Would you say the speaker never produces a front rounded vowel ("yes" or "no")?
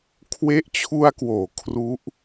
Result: yes